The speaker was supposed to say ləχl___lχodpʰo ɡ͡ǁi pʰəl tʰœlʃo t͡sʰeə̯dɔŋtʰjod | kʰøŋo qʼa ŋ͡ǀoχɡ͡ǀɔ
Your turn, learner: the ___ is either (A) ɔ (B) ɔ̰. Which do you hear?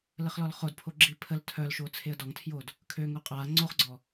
A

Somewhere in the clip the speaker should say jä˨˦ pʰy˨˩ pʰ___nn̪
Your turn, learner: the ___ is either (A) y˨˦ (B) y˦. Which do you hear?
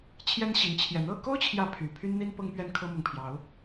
B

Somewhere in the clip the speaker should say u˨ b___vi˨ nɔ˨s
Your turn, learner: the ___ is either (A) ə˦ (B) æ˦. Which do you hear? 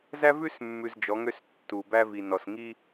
B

